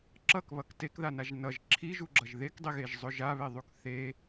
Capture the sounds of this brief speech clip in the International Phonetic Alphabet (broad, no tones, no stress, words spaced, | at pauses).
ǁʌkβʌk tekðanaʒ nʌʒ ǁʰiʒuɡ͡ǁʌʒ ðekdˤiɣeʒzˤɵ ʒaβeðˤuk θe